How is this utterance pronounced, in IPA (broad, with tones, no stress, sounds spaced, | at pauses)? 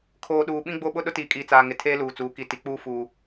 kʰ oː˨ ɗ uː˨ ɓ ĩ˦ ɡ͡b o˦ ɓ ʊ˦ ɗ ʊ˦ t iː˨ kʼ iː˨ t͡s aː˨ ŋ ɪ˨ tʰ eː˦ l uː˨ t͡s uː˨˦ k i˨ t i˨ k͡p uː˦ f uː˦